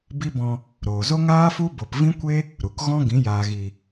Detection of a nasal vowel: present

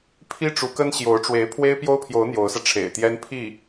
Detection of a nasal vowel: absent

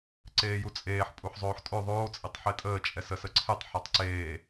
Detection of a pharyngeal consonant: present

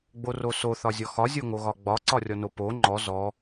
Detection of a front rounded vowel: absent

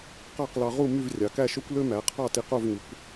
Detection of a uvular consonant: present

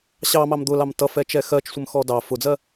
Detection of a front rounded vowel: absent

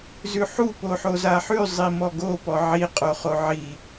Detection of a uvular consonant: present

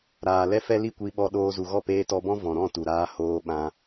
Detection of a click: absent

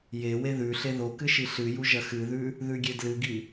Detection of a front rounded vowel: absent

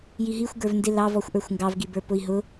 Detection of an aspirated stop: absent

